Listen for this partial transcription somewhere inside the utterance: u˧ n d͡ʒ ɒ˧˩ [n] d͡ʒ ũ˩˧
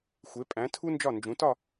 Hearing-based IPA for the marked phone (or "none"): n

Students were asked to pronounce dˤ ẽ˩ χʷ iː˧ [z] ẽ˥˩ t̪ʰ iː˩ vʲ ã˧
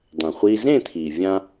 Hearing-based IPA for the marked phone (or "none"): z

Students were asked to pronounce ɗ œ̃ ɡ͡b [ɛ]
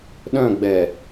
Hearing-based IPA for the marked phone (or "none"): ɛ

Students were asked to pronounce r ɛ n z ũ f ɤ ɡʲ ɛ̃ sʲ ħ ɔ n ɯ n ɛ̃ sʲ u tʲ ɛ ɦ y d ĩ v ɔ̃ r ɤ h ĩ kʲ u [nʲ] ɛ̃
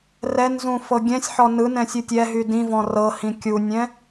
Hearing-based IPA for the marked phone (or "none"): nʲ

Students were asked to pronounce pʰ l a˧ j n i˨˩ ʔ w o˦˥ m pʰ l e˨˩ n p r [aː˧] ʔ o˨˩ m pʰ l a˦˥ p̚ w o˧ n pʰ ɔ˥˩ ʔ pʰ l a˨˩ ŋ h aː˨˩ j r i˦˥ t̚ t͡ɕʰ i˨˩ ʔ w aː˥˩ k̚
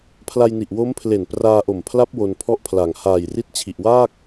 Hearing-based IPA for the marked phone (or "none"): aː˧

